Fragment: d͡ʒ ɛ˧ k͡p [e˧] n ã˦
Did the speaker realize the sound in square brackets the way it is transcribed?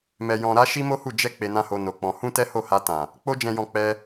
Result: yes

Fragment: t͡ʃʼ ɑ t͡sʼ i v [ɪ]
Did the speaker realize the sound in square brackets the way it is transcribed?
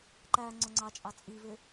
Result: yes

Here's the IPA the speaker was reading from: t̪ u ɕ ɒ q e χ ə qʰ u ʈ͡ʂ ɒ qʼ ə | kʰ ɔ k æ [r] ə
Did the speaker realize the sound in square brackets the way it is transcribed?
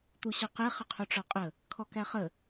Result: no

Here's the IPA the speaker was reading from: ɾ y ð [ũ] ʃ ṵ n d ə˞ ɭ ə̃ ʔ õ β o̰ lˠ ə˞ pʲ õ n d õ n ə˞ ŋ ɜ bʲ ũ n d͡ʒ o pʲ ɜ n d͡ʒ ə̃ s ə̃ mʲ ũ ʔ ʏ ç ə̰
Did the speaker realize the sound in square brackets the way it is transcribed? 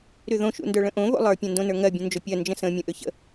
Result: no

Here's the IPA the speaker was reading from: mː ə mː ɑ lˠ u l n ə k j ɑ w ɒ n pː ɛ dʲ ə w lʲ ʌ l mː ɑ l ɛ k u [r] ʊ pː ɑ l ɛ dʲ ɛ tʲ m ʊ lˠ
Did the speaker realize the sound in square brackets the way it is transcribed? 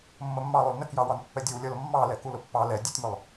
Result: no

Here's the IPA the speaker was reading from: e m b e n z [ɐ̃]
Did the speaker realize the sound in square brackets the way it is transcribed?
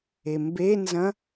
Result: yes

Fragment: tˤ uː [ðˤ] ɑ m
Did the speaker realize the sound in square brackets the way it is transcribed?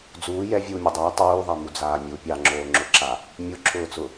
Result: yes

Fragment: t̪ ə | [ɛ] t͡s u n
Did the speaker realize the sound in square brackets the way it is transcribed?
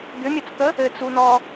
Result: no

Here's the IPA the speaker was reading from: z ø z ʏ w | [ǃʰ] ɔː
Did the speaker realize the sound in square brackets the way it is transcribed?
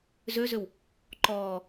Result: no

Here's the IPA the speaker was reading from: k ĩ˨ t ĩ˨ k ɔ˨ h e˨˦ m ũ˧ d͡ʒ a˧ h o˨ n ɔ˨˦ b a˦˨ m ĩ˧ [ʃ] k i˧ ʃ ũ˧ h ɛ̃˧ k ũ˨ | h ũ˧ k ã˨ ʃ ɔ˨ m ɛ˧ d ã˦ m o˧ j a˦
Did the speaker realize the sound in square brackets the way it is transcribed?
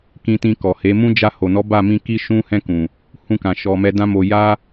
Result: no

